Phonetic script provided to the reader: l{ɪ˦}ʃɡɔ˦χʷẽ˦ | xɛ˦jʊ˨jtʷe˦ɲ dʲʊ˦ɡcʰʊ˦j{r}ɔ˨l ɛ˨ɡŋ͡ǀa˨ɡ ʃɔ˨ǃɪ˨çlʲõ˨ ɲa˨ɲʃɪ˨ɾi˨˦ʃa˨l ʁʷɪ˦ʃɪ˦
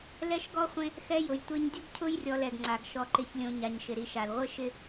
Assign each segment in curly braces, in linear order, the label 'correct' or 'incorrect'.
incorrect, incorrect

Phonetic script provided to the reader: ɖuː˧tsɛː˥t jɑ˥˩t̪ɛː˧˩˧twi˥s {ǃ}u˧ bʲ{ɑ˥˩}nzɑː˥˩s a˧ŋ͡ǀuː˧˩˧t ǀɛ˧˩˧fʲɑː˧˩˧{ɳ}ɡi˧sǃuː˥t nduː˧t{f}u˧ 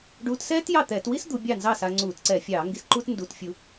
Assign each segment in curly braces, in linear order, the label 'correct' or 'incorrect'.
incorrect, correct, incorrect, incorrect

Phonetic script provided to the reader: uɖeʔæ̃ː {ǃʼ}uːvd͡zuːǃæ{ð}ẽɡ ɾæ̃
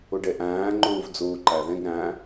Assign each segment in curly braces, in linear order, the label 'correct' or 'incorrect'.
incorrect, correct

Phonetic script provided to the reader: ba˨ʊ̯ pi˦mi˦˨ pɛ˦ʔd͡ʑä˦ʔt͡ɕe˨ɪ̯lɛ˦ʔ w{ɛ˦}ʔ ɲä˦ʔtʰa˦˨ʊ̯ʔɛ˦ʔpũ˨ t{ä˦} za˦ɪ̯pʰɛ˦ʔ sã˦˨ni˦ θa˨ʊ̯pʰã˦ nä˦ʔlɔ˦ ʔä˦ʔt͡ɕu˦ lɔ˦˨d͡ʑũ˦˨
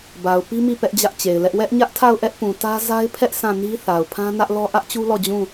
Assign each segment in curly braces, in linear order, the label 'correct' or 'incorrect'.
correct, correct

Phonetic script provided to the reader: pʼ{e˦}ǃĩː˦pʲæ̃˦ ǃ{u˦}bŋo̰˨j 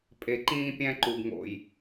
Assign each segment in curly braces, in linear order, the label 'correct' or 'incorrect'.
incorrect, incorrect

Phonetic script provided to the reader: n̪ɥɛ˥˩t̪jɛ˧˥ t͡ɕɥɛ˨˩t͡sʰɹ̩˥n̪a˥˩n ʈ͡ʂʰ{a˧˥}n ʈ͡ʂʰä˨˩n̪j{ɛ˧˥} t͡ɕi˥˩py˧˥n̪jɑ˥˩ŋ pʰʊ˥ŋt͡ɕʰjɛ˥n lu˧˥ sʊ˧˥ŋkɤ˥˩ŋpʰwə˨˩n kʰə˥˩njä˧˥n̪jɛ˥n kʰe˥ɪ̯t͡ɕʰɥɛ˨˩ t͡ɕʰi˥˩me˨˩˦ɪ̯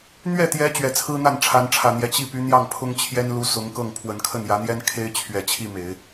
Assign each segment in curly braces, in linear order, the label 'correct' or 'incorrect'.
correct, correct

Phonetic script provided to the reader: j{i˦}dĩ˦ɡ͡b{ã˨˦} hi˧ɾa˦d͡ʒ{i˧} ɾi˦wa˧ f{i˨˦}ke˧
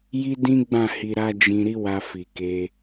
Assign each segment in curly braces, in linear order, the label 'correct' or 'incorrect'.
correct, incorrect, incorrect, incorrect

